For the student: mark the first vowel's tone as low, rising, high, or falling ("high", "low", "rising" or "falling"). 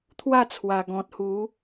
falling